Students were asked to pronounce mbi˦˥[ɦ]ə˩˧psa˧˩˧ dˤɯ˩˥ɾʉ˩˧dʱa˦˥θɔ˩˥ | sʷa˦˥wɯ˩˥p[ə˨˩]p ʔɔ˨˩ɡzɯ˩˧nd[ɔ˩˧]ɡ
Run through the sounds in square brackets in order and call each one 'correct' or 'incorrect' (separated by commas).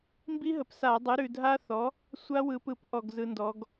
correct, incorrect, correct